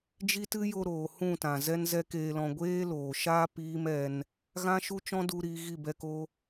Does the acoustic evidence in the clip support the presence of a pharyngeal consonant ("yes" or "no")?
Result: no